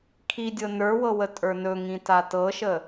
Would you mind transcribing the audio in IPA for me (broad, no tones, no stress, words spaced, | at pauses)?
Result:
kʰidʲɤ nə˞wɤwə tʼə˞nɵŋĩ tatɤʃə